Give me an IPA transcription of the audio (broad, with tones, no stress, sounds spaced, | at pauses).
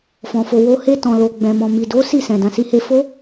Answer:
f ɔ̃˨ f o˨ w o˧ h e˧ t ɔ̃˨ l o˨ ɡ͡b ɛ̃˨ m ɔ̃˨ m i˨ d o˨˦ s i˦˨ s ɛ̃˨ d ã˨ s i˧ h e˧ f o˦